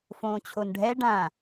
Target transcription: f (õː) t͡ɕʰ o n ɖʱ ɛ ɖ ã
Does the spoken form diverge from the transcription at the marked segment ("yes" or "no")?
no